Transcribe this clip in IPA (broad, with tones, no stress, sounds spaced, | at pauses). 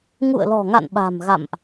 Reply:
ŋ ṵ˧˨ ə̯ l ɔ̤˨˩ ŋ a̰˧˨ n ɓ a̤˨˩ m ɣ a̰˧˨ m ʔ